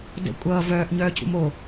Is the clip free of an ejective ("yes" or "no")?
no